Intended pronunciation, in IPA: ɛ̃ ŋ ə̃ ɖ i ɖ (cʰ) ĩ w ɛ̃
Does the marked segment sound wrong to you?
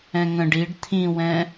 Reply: yes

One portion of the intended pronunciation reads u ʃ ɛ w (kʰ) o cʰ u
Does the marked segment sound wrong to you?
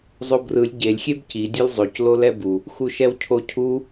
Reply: yes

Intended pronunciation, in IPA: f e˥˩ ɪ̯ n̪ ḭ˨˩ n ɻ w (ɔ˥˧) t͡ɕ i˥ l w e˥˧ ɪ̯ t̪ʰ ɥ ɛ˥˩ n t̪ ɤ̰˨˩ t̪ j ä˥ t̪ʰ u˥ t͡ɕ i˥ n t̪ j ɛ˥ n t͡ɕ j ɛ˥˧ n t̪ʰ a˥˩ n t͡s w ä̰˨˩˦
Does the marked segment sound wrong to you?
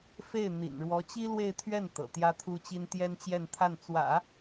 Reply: yes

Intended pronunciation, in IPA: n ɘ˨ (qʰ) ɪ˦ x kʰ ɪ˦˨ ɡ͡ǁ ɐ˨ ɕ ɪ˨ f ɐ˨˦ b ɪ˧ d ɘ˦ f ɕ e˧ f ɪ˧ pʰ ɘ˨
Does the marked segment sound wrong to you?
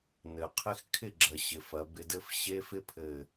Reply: no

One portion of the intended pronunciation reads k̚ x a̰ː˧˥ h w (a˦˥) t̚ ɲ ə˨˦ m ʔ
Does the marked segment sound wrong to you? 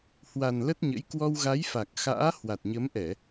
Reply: yes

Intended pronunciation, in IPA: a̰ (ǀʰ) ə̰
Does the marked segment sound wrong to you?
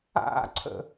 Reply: no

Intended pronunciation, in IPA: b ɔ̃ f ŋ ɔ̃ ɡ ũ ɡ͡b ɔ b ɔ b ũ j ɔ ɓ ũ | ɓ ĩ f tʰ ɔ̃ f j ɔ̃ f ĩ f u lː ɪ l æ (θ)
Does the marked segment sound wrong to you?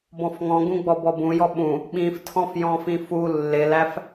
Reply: yes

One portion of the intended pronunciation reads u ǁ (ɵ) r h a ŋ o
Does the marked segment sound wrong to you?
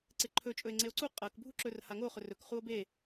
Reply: no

